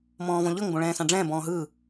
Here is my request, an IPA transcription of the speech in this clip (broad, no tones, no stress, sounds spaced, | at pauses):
m ɔ̃ː v ɔ̃ ʎ ɤ ŋ b õ ɭ ɛ̃ː s ã ɖ͡ʐ ɛ̃ː b ɔ̃ː ɦ ɯː